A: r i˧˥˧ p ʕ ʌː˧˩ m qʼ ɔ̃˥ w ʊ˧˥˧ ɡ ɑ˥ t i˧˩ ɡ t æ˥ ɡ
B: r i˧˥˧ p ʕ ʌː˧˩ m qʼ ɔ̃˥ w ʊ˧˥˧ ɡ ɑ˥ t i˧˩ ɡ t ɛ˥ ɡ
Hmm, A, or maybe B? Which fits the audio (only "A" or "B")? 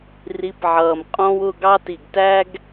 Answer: A